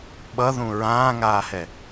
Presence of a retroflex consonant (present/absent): absent